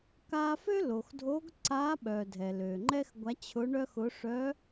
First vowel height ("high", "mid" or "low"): low